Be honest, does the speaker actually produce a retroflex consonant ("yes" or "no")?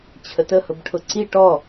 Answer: yes